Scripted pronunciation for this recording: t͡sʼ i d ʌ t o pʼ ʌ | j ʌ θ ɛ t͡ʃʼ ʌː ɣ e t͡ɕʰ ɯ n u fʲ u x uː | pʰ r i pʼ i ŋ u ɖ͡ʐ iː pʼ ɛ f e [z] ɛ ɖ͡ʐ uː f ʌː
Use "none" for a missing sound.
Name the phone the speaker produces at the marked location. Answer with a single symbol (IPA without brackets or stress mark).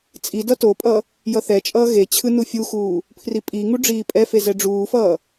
z